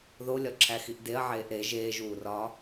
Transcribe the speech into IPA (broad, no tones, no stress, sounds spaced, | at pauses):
ð o lʲ ɒ ǁʰ æ x i ʔ d e ɐ̯ ʕ eː ʔ ɾ e ʒ eː ʒ uː r ɒː